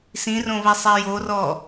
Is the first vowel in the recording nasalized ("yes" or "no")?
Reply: yes